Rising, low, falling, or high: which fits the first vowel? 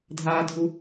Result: high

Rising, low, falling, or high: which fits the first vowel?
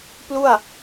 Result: falling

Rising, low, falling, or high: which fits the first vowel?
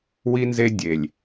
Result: high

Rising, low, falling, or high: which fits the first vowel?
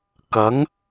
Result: rising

